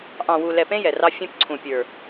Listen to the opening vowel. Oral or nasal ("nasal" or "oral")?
nasal